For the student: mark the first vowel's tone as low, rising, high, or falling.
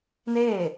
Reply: falling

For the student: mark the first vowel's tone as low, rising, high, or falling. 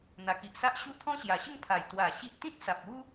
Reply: low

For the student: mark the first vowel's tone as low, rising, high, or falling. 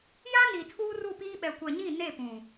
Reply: high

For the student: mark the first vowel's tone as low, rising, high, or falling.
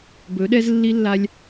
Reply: rising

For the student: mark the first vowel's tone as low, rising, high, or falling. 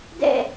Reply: falling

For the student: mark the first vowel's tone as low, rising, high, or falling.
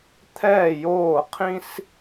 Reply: falling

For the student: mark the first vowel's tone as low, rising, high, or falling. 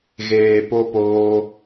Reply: low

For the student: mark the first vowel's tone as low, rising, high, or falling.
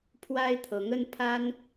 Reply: high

